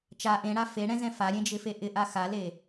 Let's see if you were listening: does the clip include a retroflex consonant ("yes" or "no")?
yes